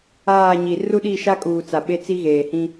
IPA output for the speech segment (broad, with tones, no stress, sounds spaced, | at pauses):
aː˦˨ ɲ i˨ r u˦ ɗ i˦˨ ʃ a˦ kʼ uː˨ t͡s a˨ ɓ e˦ t͡s i˦ ɣ eː˨ h ĩ˦